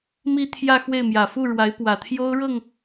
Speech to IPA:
m i˥˧ t̪ʰ j ä˥˧ x w e˥˩ ɪ̯ m j ä˨˩ f u˥˩ ɻ w a˧˥ ɪ̯ p w ä˨˩ t̪ʰ j o˥ ʊ̯ ɻ ɤ˥˩ ŋ

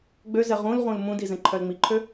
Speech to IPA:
ɡ͡b ø z ɛ ʁ ũ l ʁ ũ l m ũ d i z ɛ̃ ǃʰ œ l ŋ͡m i ǃʰ ø

